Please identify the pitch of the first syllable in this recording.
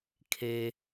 low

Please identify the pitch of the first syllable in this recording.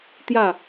falling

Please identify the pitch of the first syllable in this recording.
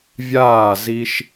falling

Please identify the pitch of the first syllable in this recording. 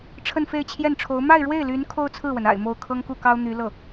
falling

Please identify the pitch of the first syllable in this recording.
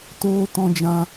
high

